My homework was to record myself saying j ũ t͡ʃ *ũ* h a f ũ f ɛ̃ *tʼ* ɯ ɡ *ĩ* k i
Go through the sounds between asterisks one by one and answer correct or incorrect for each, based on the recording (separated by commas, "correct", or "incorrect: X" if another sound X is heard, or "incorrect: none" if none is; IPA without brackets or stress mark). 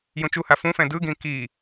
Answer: incorrect: u, incorrect: d, correct